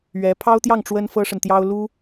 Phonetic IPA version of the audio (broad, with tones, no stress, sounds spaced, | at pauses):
ɥ ɛ˧˥ pʰ ɑ˥ ʊ̯ t̪ j ɑ˥˩ ŋ ʈ͡ʂ w ə˥ n f ɤ˥ ʂ ə˨ n t̪ j ɑ˥ ʊ̯ l u˥